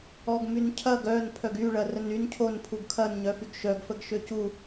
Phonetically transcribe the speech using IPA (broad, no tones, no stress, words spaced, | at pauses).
ɔɡmyncʰɐɡ œn pʰœɡyɭɐ rənyn cʰonpʰuɡ kʰɐn ɲœfyɡʃœɡ fəɡʃøcu